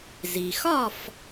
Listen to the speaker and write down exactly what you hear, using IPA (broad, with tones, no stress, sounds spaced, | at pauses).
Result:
z i˩ x ɒ˥˨ f